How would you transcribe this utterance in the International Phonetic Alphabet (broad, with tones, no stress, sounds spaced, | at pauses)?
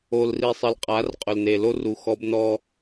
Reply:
o˨ l r i˨ sˤ ɪ˨ l qʼ a˨˦ r qʼ ʊ˨ l n e˨ l o˦ r u˨ x ɔ˦ b n ɔ˦